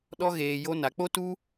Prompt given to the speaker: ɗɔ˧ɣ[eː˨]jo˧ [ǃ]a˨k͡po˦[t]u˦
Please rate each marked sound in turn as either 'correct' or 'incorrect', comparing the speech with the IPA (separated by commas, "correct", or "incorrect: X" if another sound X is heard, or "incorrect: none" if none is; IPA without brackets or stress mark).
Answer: correct, incorrect: n, correct